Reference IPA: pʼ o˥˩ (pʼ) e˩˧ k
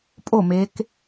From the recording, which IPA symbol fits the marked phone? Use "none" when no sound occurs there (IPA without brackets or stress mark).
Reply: m